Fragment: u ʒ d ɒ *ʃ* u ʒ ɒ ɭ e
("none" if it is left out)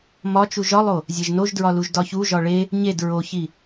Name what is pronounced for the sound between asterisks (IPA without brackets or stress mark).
ç